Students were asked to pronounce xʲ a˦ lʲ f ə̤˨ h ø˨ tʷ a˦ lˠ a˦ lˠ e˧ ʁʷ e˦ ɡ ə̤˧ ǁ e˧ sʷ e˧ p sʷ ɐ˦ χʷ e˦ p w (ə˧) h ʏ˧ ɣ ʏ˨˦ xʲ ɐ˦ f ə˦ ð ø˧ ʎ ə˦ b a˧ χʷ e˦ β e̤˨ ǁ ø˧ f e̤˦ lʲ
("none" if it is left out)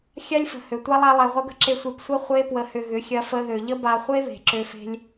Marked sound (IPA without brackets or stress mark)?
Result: ə˧